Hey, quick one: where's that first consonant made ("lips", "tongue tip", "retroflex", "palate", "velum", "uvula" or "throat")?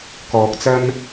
velum